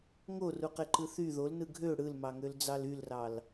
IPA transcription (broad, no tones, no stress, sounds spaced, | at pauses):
ŋ o r u q e ǃ ɯ θ y ð o l n ɯ ɡʱ ø ɽ ɯ l m ɑ ŋ ø l d͡z ɑ l y l r ɑ l